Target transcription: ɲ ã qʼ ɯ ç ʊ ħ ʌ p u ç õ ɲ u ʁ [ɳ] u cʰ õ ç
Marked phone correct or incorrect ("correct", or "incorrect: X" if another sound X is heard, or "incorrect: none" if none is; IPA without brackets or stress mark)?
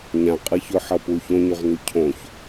incorrect: n